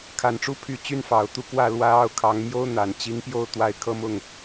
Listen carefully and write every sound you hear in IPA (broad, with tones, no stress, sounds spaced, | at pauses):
kʰ a˨˩ n ʈ͡ʂ u˥˩ pʰ y˧˥ t͡ɕ y˥ n f ɑ˨˩ ʊ̯ t̪ u˥˧ k w ä˥˩ l w ä˥ ɑ˥˩ ʊ̯ kʰ ɑ˧˥ ŋ m j o˥ ʊ̯ n̪ a˨˩ n t͡ɕ i˧˥ ŋ p j o˥˧ ʊ̯ t̪ w a˥˩ ɪ̯ kʰ ɤ˥ m ʊ˥˩ ŋ